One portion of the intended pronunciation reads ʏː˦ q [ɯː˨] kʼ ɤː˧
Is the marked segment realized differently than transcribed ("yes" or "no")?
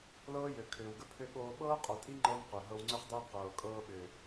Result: yes